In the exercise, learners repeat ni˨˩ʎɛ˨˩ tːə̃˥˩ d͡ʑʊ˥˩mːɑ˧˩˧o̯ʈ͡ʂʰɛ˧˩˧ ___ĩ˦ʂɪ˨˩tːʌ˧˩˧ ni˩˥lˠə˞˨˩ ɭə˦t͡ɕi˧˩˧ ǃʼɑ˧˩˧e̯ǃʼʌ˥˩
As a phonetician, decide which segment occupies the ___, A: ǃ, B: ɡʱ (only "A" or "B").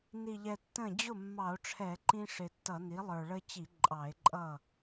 A